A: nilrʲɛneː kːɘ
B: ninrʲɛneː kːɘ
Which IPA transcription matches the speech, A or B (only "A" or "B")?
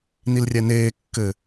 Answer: A